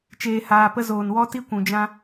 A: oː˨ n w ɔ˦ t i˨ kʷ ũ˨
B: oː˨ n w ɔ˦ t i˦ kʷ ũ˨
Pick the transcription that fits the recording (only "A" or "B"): B